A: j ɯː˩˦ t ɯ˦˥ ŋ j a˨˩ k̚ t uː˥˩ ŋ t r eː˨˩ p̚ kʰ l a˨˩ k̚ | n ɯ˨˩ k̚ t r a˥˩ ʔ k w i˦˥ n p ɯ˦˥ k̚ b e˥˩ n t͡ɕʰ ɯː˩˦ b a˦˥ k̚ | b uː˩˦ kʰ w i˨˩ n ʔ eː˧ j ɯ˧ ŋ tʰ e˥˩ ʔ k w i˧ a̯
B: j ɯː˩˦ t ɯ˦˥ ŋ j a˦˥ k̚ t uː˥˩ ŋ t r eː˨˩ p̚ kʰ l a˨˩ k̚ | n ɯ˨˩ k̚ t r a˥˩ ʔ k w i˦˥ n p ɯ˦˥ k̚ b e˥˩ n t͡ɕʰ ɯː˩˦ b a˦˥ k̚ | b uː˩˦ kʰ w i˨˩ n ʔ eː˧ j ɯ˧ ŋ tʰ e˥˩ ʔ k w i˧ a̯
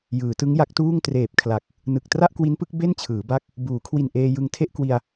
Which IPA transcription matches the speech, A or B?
B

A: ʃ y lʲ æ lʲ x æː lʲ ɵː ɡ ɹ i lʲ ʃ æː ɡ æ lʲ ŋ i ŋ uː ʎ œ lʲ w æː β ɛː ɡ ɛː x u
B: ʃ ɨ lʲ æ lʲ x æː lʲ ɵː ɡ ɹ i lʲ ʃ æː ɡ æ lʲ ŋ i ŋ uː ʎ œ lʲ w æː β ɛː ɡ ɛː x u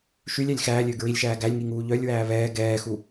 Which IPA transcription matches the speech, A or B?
A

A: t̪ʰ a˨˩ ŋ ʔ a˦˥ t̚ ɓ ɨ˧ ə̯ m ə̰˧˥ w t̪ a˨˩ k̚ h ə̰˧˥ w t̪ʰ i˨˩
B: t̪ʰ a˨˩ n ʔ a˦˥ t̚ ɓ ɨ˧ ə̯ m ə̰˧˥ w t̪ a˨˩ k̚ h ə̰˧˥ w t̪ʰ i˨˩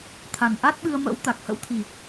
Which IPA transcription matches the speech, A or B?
B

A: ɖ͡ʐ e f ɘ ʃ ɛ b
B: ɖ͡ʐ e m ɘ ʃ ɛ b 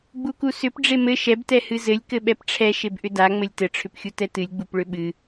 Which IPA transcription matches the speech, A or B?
B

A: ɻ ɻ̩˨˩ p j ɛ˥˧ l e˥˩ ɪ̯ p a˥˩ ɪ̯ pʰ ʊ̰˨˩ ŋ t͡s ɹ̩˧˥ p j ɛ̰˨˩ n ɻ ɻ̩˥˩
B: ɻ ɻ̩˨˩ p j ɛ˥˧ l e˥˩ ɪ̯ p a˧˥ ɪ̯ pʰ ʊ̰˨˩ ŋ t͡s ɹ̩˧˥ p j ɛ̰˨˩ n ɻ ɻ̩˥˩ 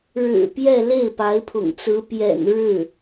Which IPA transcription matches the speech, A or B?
B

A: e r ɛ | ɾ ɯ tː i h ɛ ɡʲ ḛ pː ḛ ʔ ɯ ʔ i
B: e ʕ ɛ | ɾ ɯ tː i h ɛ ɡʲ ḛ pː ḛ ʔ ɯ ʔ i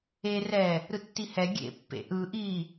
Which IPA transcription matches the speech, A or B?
A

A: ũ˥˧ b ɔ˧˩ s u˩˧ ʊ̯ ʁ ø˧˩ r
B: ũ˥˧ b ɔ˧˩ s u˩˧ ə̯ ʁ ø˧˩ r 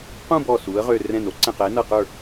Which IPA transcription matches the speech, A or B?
B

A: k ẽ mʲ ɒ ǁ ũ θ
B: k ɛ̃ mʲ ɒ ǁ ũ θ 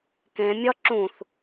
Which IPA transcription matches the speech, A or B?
A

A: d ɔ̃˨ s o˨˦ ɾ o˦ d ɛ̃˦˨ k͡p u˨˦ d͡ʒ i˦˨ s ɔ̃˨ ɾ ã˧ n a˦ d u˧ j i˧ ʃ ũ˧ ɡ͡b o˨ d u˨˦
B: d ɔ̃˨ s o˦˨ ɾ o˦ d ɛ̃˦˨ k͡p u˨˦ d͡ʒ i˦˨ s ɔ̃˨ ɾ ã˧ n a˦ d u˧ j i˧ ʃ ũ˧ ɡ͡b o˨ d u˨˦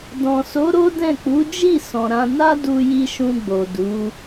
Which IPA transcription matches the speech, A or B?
A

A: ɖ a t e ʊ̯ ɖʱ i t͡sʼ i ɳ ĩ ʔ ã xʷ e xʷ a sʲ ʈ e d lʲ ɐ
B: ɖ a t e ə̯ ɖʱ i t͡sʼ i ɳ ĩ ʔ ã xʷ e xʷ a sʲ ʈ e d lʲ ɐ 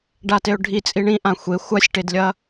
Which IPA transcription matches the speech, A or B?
A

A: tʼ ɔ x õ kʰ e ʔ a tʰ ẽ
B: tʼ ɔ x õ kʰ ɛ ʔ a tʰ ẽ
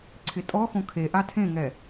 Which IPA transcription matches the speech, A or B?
A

